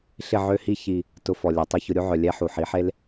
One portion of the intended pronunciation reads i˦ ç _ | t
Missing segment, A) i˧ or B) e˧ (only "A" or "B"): A